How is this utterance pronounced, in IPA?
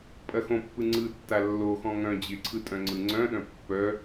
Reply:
pʼɐxõpːɯ ŋ͡ǀɯ tːalːoxɔ̃ ŋœ̃ d͡ʑɪǀʰɯ tʼœ̃ŋ͡ǀɯŋ͡ǀœ̃ɗœ̃ pːœ

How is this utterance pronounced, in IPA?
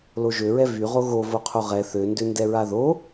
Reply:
loʒøɹɛ vyʁo ɣovo qʰoʁɛ θøndø ndɛɹaðo

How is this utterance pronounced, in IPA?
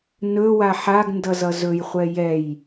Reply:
nɵwa ħaɡ ndʌzʌzɵjχʷɛ jɛj

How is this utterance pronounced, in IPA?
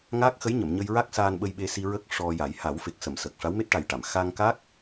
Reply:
ŋaː˦˥k̚xə˧˥jɲə˨˩˨m ɲə˧jɹa˦˥k̚ saː˧nɓə˧jɓe˧si˧ ɹə˦˥k̚ʂɔ˧ja˨˩˦j ha˨˩˦wfe˨˩k̚sə˨˩˨m sə˨˩k̚ ʂa˧˥wme˦˥t̚ʈa˨˩jʈa˨˩˨m xa˧ŋka˦˥k̚

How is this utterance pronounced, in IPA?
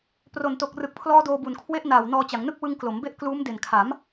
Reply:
pro˨˩nto˨˩k̚rɯ˨˩k̚pʰlɔː˦˥ doː˧bu˨˩nkʰwe˦˥ʔnaː˨˩w nɔː˧t͡ɕa˩˦ŋnɯ˥˩k̚ wɯ˧ŋ klo˩˦mbe˦˥ʔkluː˦˥m de˨˩nkʰa˩˦m

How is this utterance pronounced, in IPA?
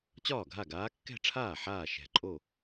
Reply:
t͡ɕɒː˥˩ɡʱa˥˩ɡaː˧˥ kːɛ̤˥˧ʈ͡ʂʰaː˥˩ ħaː˥˩ʃɛ̤˨˩ǃʼo˥˩

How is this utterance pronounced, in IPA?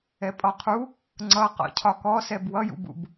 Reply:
ɛpʼɔqʰu | ŋ͡ǀʌ qɔ̰cʰɒkɔsɛb wʌjṵbṵb

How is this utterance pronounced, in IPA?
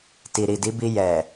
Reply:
ti˨ɾi˨di˨˦bi˧ jɛ˨

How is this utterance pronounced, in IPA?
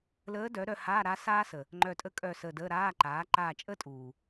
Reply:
ləː˧˥dœ˩˥ ɾœ˦˨haː˧˥˧ɾa˧˥ saː˥sə˨ | ŋ͡ǃœ˦˨tʼə˥ kʼœ˦˨səː˦˨dəː˧˥˧ ɾaː˧˥˧ ǃaː˩˥ǃaː˦˨t͡ʃʼəː˥tʼuː˨

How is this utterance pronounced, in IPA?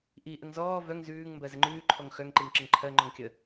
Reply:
ʔiʔəŋ zɔː vœŋ zʉːŋ mbɜzəŋ͡ǃʉːǃʰɔŋ xœŋǃiŋ ǁəŋǃʰɜŋ͡ǃɔŋ kʲə

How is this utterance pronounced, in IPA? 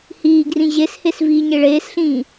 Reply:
hiːɡrĩ ʑeshes viːɲeɭeːsɬĩː

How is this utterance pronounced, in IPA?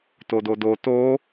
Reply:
tododo to

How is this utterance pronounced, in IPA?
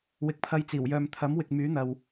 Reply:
wɪ˨˥k̚pʰɐ˧jt͡siː˨˩w jœː˨mt̪ʰɐ˨˥mwɪ˨k̚ myː˨˥n̪ɐ˨w

